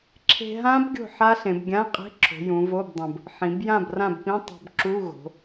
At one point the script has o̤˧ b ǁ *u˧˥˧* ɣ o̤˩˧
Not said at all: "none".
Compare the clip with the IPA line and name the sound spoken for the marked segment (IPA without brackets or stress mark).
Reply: u˧˥˧